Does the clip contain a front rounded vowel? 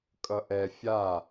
no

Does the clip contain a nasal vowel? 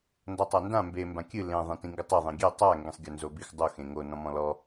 yes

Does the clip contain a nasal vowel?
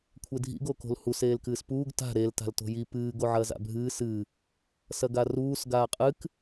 no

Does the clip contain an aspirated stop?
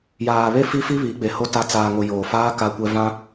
no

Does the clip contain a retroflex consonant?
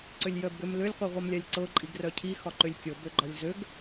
no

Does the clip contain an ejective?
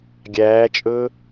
yes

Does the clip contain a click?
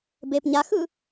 no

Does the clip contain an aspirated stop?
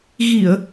no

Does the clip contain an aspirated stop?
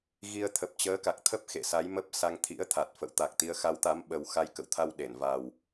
yes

